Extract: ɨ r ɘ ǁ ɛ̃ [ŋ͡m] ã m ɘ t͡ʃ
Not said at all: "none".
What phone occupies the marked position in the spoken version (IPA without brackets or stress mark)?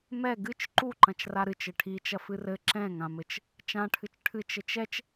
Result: ŋ